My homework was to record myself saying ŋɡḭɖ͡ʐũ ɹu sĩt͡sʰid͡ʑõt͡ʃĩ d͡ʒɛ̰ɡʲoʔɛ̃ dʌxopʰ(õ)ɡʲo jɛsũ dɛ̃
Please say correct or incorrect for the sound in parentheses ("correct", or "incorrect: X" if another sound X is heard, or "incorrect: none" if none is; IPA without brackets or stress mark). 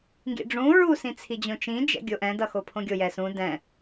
correct